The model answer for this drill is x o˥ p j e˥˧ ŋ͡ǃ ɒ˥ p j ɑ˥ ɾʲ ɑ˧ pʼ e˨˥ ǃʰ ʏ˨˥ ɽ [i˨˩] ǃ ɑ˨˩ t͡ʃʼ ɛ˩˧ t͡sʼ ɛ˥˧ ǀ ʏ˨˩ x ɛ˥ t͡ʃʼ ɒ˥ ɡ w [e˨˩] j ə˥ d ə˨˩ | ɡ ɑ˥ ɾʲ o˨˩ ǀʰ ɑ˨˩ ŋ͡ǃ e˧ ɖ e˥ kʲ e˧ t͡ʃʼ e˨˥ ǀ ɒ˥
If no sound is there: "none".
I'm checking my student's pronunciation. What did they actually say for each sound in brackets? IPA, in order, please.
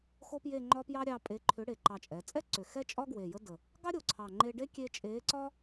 e˨˩, e˨˩

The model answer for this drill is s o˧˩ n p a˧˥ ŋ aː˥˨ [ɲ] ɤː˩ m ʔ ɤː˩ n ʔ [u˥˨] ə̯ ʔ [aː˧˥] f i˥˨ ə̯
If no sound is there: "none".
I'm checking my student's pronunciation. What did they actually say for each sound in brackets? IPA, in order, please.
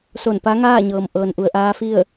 ɲ, u˩, aː˧˥

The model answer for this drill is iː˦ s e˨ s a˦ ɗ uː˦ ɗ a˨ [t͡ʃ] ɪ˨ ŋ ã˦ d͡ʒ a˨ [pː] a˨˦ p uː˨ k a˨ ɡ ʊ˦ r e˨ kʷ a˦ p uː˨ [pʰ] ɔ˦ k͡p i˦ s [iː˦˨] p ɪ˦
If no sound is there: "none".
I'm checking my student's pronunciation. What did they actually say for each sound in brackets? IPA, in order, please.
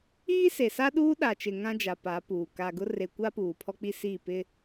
t͡ʃ, p, pʰ, iː˦˨

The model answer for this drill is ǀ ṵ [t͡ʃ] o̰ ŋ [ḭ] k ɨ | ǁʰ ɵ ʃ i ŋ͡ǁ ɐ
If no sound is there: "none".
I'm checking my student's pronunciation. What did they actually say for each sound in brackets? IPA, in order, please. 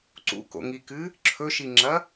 k, i

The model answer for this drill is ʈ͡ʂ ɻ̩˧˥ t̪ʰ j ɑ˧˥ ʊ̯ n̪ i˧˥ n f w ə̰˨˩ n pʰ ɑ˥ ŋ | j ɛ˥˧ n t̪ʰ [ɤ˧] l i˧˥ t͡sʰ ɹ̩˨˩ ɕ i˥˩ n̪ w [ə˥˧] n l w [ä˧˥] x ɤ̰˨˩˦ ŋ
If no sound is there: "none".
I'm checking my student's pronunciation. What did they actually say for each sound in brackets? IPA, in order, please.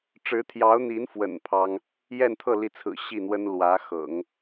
ɤ˥˩, ə˥, ä˧˥

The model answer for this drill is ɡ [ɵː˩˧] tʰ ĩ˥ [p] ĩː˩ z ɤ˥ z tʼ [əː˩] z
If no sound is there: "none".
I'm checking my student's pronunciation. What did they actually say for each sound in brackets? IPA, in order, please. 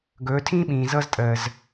ɵː˩˧, ɓ, əː˩

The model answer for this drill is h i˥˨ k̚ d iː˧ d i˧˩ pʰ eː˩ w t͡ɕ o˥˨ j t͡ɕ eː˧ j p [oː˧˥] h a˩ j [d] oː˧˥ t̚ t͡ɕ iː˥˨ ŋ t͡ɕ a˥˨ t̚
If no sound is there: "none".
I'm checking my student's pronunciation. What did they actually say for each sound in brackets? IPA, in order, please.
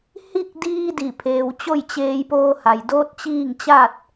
oː˧, d

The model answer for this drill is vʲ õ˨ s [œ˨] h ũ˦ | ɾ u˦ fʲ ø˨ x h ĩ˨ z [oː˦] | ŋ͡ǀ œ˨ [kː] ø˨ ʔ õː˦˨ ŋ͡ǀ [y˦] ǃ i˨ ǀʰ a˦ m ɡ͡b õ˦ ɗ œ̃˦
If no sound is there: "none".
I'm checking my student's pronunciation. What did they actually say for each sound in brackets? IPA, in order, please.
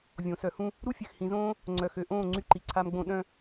œ˨, õː˦, x, y˦

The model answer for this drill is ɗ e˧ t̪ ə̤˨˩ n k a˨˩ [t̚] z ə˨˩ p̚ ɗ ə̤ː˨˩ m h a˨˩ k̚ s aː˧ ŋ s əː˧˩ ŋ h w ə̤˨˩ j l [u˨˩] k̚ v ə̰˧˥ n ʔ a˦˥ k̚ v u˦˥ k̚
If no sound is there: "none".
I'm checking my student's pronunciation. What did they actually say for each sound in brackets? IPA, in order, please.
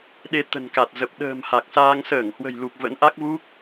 t̚, u˨˩

